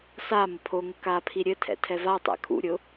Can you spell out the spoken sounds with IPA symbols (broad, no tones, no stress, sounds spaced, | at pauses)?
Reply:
s a m ə pʰ o ŋ ə k a pʰ i ɾʲ ɘ tʰ ɛ̰ tʰ ɛ v a tˤ ɛ̰ kʰ ṵ ɾʲ ʊ